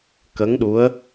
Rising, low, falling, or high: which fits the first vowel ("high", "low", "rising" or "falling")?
rising